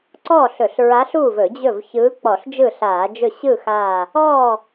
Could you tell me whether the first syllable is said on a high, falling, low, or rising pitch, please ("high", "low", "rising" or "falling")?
falling